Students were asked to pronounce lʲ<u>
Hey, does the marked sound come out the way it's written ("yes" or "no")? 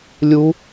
yes